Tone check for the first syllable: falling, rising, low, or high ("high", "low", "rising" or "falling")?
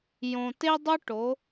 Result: low